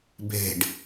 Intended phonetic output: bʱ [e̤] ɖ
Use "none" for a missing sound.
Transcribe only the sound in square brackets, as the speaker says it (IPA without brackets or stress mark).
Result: e̤